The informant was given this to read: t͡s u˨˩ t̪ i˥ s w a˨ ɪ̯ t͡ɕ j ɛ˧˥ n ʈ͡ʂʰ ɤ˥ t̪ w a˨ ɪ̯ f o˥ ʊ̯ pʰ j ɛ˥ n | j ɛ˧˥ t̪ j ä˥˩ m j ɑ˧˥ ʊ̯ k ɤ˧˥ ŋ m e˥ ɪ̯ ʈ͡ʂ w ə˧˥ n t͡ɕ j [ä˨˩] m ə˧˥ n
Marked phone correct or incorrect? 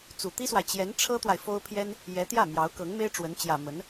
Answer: correct